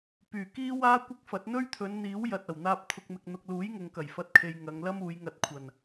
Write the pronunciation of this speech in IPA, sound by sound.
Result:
p yː˨˩ k iː˥ w aː˥ kʷ ɪ˥ k̚ f ɐ˨˥ t̚ n̪ ɵ˥ ɥ t̪ʰ ɵ˨˧ n n̪ iː˨˥ w j ɐ˨ t̚ ɐ˨˩ w n̪ aː˧ p̚ t̪ʰ ʊ˨ k̚ m ɪ˨ k̚ n̪ ʊ˨ k̚ l uː˨˥ j ŋ ʊ˨ ŋ k ɐ˨˩ j f ɐ˧ t̚ kʰ e˨ j ŋ ɐ˨˧ ŋ l ɐ˥ m uː˨˧ j ŋ ɐ˧ t̚ kʷʰ ɐ˨˩ n

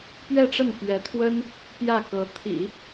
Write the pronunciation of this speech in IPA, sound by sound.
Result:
p ɥ ɛ˥˧ ʈ͡ʂ ə˥˩ n p ɥ ɛ˧˥ t̪ʰ w ə˥ n | p j ä˥˩ k ɤ˧˥ t̪ʰ ḭ˨˩˦

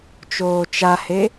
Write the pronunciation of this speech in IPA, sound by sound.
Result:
t͡ʃ oː t͡ʃ a h e

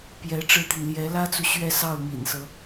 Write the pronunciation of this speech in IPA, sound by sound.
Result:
p j ɛ˧˥ ʈ͡ʂ ɻ̩˥ t̪ i˨ n l j ɛ˧˥ l ä˥ t͡s u˨ ɕ ɥ ɛ˥˧ s ɑ˥˩ ʊ̯ m ḭ˨˩ n s ɤ˦

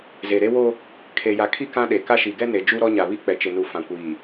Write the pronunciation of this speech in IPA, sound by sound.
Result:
z e˨ ɾ e˦ w o˦ | kʰ e˨ j a˨ kʰ i˦ k ã˦ ɗ e˨ k a˦ ʃ i˨ ɡ ɛ˦ n e˨ d͡ʒ u˦ ɾ ɔ˦ ɲ a˨ β i˦ k͡p ɛ˨ t͡ʃ ɪ˨ n u˨ f ã˨ kʷ iː˨

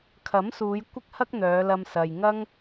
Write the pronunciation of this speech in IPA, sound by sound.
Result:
kʰ ɐ˨˥ m s uː˨˧ j kʷ ɪ˥ k̚ h ɐ˥ k̚ n̪ œː˨˧ l ɐ˧ m s ɐ˨ j ŋ ɐ˥ ŋ

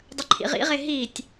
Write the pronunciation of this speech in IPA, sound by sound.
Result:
dˤ ə ǃʰ ḭ ʁ ḭ ʁ e ɦ i tʲ

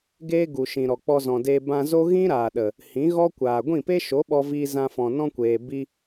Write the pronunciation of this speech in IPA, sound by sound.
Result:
ɡ eː˦ ɡ u˨ ʃ ĩ˨ ɾ ɔ˨ k͡p ɔ˧ z ɔ̃˨ d eː˧ b ã˧ z o˦ ɣ ĩ˦ ɾ aː˨ ɗ ə˨ | h ĩ˨˦ ɣ ɔ˦ kʷ aː˨ ɡʷ ĩ˦˨ p e˦ ʃ o˨˦ ɓ ɔ˧ v iː˧ z ã˧ f ɔ̃˨ n ɔ̃˦ kʷ eː˨ b i˧

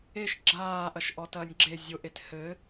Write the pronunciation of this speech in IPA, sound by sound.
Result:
e ʃ ɡ͡ǁ aː ʔ ɐ ʃ ʔ ɔ t ɐː nʲ ɡ͡ǁ e zʲ o ʔ e t h ɘ

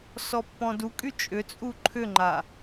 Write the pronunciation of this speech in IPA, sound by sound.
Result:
s ɔ pː ɔ̃ d u kʼ y t͡ʃʼ ʏ t͡sʼ u ǃʰ ʏ ŋ͡ǃ a

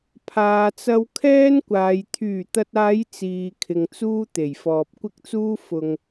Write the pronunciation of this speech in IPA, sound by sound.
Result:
pʰ aː˨ t͡s ɐ˧ w kʰ ɛː˥ n kʷ aː˨ j t̪ʰ yː˨˩ t̪ ɐ˨ t̚ aː˨˧ j t͡s iː˨ kʰ ɪ˨ ŋ t͡s uː˥ t̪ e˨˩ j f ɔː˨ p̚ kʷ ɪ˥ k̚ t͡s uː˥ f ʊ˧ ŋ

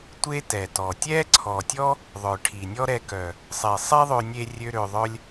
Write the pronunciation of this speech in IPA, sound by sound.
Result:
tʷ e˦ t ɛ˨ t ɔ˨ tʲ ɛ˦ ǀʰ ɔ˨ tʲ ɔ˦ | ðˤ œ˨ ʈʰ i˨ nʲ ɔ˦ ɾ ɛ˧ k œ˨ | sˤ e˨ sˤ e˦ ðˤ ø˧ nʲ e˧ rʲ ø˦ ɾ ø˧ ðˤ œ˦ lʲ

